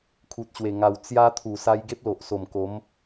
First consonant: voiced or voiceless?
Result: voiceless